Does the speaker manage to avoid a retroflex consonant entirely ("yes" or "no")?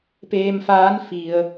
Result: yes